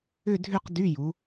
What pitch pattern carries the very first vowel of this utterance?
falling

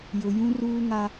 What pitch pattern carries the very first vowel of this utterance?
low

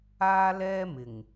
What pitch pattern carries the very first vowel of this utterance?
high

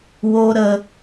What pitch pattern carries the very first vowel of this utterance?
high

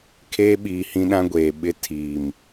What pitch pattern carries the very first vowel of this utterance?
high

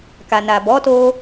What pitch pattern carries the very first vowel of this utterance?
low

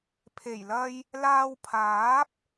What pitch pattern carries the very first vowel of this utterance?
low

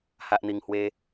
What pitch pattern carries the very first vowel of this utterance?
low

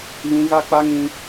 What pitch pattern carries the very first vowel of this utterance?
high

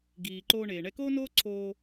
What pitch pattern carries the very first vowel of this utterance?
low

